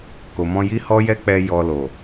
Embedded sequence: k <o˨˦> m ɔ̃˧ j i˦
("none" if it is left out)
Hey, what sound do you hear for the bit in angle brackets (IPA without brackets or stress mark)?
o˨